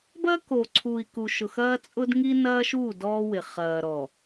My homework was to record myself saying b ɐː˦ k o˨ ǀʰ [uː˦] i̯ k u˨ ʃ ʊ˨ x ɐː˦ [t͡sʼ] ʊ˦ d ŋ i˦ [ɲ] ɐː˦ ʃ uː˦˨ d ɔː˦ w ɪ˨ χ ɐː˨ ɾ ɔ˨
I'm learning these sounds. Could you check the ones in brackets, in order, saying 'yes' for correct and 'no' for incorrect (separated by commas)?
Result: no, yes, no